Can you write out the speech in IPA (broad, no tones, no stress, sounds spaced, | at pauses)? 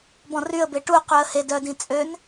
b ɔ̃ r y ə̯ b e ʈ u q y ə̯ h e d œ d ĩ t͡sʼ ø n